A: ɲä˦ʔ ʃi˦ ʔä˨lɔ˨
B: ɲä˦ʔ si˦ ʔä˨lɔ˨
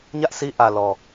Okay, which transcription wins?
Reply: B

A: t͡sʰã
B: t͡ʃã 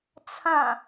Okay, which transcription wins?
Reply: A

